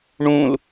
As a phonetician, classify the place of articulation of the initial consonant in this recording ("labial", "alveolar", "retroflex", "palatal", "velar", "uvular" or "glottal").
retroflex